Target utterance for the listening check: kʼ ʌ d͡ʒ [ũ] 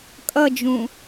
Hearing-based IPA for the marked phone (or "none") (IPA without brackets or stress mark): ũ